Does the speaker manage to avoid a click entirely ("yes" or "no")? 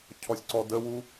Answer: no